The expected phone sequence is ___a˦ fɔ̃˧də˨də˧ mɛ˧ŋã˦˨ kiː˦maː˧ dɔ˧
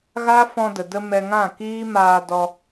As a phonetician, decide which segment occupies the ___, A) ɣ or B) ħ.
A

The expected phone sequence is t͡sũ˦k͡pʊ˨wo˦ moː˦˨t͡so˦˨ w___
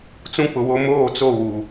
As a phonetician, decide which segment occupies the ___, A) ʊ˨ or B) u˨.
B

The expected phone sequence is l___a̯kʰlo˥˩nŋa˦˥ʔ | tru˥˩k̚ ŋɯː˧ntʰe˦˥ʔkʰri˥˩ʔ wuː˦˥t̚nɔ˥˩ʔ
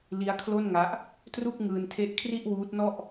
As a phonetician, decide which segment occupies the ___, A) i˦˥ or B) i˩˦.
A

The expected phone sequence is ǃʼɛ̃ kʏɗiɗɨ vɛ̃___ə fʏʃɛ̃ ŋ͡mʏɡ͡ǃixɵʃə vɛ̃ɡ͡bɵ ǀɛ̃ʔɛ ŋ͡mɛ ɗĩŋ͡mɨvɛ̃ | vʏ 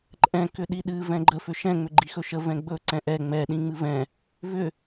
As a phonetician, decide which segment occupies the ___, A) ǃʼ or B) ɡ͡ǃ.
B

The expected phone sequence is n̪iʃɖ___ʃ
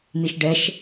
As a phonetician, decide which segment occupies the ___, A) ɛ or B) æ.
A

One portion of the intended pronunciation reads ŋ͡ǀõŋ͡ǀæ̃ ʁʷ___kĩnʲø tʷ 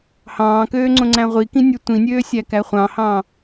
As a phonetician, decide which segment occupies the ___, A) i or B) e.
A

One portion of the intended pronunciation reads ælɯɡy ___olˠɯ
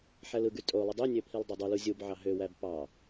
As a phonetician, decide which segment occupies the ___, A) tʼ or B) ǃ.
A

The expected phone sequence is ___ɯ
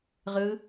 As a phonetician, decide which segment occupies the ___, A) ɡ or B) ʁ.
B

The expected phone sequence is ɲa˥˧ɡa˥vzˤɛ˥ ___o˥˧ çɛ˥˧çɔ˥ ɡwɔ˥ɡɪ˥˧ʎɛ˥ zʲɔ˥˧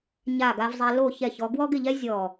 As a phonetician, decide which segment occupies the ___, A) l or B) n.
A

